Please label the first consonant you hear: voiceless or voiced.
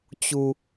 voiceless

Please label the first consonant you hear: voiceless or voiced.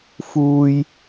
voiceless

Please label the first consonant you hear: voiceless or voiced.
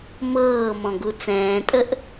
voiced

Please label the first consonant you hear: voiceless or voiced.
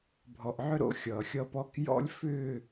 voiced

